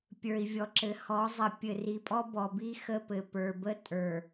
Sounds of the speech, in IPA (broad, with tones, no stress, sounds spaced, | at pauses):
pʲ ə˞˨ i̯ vʲ ɔ˨ ǁ ɘ˨ h ɔ˨˦ zˤ ə˨˦ pʲ ɘ˨ r i˨ pʼ ɔ˦ b ɔ˨ b i˦ x ə˦˨ p ɘ˨ p ə˞˨ b ə˦ tʼ ə˞˨